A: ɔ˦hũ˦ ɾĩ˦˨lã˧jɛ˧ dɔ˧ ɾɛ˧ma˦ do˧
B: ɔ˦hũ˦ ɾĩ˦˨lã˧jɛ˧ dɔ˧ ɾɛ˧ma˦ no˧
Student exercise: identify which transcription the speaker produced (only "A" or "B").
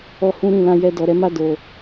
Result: A